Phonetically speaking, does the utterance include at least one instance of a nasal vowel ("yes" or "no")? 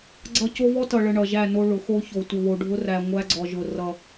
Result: no